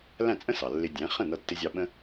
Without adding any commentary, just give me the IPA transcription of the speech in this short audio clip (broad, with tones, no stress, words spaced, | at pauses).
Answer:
læ̃˥˩t͡sʼə̃˥sɑ˩ lːɪ˧dʲæ̃˩˥ χə̃˥˩nʌ˧tːɪ˧zʲɑ˧ ɓə̃˥